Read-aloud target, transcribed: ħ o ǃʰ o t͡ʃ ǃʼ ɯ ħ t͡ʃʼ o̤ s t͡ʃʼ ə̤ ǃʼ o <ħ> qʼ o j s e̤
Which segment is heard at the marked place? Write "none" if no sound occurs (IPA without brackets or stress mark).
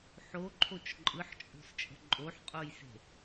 ħ